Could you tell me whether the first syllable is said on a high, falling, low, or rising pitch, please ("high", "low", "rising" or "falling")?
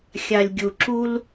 low